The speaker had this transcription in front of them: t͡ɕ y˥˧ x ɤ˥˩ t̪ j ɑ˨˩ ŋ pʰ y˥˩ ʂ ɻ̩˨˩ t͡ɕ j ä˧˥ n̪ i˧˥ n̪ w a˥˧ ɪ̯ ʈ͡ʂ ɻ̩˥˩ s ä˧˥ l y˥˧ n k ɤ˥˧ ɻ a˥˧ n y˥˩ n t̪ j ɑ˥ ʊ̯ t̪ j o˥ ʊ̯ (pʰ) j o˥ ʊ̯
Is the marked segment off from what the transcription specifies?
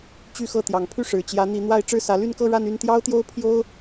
no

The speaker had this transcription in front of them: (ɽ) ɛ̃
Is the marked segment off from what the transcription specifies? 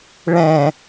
yes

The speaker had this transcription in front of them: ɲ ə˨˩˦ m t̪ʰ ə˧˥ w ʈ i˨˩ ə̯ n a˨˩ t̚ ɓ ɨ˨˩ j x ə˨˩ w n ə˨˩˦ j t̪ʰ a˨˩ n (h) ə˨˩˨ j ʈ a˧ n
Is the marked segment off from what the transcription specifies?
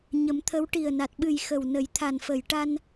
yes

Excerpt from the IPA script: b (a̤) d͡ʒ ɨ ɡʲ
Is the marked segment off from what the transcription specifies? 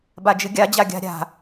yes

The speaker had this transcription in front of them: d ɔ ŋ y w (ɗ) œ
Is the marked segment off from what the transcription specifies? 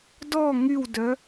yes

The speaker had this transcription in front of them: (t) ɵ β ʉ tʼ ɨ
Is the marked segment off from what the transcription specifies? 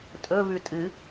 yes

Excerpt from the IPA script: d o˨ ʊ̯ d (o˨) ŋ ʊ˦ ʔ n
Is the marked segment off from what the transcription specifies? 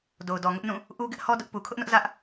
yes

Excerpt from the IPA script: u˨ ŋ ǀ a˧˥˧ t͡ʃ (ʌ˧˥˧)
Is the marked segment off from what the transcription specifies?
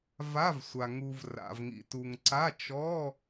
yes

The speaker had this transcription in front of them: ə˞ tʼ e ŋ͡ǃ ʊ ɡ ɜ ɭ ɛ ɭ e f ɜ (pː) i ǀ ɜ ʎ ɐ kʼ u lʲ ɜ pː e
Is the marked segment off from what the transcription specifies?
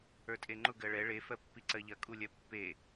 no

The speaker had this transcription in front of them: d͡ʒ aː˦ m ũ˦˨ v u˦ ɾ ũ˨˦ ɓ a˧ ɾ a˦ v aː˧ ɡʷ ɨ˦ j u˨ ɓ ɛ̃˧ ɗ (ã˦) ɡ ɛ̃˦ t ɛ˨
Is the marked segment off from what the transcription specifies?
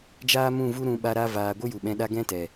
yes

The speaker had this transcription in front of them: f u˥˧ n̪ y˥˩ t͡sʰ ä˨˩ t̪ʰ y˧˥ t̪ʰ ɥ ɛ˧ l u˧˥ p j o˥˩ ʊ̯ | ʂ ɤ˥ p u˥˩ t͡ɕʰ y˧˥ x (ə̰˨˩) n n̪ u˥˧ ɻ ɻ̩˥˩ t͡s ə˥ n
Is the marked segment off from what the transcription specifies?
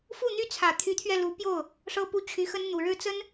yes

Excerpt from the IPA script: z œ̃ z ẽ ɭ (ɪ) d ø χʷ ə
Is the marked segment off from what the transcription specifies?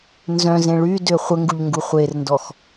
yes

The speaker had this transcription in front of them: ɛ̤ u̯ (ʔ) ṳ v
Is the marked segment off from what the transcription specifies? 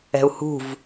yes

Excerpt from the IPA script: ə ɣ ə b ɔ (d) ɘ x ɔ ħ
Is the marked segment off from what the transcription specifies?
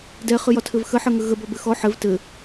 yes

